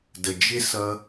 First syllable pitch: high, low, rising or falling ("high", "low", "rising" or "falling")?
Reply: low